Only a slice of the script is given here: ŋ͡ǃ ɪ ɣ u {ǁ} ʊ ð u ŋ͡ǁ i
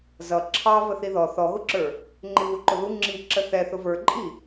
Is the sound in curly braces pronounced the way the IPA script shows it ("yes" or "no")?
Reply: no